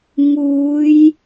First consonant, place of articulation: velar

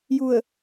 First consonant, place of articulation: palatal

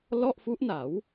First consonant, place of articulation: alveolar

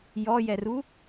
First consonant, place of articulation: palatal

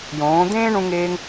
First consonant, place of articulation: palatal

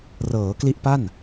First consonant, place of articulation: alveolar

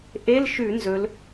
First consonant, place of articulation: glottal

